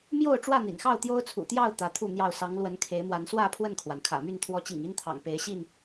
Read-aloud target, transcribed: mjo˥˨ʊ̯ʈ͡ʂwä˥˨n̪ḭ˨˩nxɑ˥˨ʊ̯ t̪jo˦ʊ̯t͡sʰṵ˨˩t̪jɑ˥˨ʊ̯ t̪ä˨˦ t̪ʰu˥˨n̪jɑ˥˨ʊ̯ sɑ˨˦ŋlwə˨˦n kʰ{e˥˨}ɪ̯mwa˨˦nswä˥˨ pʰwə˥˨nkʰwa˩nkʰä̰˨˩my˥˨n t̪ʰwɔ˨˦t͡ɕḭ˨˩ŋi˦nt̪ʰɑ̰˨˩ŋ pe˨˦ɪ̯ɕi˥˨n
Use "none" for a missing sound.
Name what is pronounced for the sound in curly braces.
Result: e˨˦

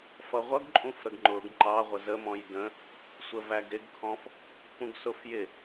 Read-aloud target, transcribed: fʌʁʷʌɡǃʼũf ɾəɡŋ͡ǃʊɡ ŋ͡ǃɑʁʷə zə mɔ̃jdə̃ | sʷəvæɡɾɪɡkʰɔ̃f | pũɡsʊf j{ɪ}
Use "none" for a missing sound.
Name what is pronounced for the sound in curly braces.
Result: ɪ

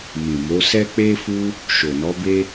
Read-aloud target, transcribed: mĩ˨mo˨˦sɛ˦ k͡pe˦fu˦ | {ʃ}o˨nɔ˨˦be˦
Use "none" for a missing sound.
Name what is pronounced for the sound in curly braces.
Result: ʃ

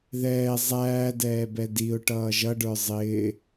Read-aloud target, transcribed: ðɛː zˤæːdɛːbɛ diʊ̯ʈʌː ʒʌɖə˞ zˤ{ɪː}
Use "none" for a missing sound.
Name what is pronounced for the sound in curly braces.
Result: ɪː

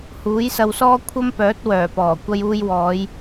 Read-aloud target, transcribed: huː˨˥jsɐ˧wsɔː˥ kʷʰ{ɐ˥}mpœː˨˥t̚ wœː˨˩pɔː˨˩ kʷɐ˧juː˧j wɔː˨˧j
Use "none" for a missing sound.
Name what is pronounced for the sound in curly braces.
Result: ɐ˥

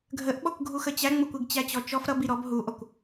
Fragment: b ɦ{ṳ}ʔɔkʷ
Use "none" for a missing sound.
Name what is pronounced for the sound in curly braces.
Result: u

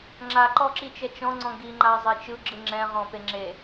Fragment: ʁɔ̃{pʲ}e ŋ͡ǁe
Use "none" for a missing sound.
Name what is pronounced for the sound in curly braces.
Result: p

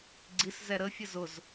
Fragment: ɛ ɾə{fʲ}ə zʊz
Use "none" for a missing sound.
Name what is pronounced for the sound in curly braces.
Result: fʲ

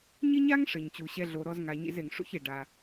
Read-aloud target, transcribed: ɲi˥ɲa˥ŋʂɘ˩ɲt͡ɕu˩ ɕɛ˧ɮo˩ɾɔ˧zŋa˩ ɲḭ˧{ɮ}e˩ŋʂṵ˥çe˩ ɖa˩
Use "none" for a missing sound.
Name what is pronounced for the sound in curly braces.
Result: z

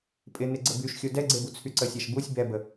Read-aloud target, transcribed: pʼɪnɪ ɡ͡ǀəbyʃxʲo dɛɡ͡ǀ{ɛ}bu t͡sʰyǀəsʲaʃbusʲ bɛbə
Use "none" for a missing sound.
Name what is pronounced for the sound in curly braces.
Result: e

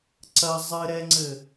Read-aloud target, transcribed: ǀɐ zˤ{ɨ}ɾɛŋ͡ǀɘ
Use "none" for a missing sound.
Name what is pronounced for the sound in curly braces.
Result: ɨ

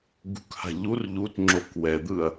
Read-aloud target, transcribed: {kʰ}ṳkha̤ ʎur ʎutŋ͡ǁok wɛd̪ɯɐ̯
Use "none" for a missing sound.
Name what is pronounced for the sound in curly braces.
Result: ɡ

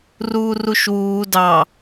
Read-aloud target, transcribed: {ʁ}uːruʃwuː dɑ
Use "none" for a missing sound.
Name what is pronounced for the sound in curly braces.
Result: r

